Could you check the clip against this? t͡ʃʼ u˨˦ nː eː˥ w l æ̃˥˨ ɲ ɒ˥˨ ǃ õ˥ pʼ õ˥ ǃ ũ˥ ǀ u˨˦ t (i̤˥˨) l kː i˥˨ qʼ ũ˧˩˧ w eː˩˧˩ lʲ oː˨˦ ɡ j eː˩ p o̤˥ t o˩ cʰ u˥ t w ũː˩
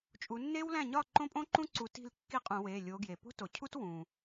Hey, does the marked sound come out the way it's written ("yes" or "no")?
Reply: yes